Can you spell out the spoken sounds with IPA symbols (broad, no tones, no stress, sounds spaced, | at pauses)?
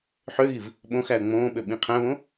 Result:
ħ ø ɣ i v | ɓ õ x æ ə̯ ŋ͡m õː ɓ ø ɓ ĩ qʰ æ̃ β õ